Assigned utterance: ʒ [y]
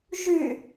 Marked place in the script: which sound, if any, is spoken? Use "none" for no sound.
y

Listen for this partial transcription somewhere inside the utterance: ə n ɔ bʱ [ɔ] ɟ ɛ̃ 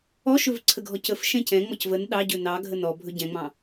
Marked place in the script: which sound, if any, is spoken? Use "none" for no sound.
ɵ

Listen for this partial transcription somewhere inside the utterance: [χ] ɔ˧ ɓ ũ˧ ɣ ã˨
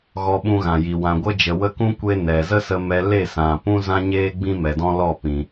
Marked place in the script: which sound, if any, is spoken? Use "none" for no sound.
ɣ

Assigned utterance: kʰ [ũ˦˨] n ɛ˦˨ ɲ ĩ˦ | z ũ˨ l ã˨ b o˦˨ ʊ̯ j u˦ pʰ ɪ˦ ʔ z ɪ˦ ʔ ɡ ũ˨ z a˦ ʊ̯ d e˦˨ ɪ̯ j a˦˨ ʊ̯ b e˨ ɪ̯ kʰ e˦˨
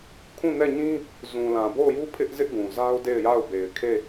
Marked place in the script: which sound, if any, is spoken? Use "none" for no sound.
ũ˦˨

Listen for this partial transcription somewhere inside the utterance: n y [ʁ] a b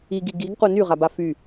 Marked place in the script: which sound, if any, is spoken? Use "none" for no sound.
ʁ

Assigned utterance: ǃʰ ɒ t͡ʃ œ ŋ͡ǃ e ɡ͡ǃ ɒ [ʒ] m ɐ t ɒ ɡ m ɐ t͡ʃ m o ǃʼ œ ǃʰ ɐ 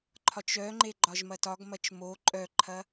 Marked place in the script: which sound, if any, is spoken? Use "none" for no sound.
ʒ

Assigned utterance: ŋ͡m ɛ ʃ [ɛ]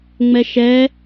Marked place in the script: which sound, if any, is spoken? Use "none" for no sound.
ɛ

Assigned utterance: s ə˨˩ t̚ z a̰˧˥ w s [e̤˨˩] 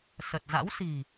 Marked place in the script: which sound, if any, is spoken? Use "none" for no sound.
i̤˨˩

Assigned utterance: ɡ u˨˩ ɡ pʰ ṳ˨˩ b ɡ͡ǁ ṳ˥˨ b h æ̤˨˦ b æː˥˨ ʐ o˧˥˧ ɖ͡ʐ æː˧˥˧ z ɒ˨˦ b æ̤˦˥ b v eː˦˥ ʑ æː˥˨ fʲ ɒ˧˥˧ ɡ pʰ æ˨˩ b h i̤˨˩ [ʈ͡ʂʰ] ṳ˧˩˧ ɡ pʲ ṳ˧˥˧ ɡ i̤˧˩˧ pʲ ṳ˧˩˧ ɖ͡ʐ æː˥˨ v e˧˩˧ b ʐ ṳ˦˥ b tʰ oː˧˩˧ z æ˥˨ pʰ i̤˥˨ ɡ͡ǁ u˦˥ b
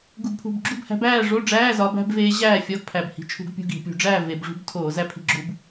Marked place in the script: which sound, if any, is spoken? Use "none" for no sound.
t͡ʃʰ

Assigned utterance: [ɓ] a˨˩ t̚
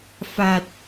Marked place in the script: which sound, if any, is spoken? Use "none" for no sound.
f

